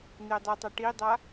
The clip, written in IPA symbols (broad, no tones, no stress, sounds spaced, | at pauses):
n̪ e dˤ ɯ tˤ a ʈ i dˤ a